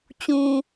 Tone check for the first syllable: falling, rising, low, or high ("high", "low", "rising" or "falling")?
low